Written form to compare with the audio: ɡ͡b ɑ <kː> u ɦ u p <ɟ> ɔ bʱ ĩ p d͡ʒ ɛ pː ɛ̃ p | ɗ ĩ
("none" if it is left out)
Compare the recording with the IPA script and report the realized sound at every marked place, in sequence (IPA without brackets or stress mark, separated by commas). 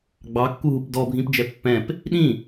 kː, d